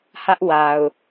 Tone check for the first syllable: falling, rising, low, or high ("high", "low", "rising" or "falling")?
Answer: high